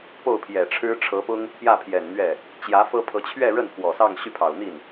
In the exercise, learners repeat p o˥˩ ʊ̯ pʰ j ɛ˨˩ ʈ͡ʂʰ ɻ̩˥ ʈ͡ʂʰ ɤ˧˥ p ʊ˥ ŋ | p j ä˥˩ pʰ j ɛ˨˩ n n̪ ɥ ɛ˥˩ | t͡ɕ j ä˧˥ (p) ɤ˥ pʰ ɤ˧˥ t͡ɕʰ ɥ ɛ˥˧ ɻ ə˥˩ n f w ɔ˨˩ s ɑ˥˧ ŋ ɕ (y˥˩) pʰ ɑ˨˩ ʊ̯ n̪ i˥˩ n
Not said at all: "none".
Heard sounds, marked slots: f, y˥˩

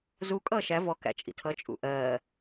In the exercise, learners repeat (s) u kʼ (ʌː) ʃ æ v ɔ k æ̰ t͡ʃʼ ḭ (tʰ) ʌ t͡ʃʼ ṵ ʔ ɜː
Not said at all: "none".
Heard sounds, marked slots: z, ʌː, tʰ

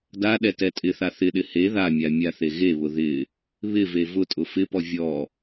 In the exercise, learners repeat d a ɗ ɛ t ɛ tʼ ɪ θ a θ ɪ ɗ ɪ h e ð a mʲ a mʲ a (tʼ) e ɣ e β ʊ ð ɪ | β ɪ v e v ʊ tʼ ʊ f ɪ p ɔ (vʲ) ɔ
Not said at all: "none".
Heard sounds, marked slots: θ, vʲ

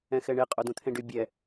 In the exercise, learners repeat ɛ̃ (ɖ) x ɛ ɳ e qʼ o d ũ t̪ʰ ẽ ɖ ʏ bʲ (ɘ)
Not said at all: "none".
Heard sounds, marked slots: none, ɛ

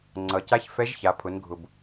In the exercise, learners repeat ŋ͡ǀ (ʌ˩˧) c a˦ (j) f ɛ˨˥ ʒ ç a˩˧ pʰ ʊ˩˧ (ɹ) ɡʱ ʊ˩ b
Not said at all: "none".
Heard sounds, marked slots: ʌ˩˧, ç, n

